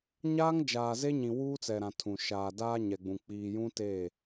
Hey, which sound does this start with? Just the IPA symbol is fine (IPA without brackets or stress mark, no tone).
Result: ɲ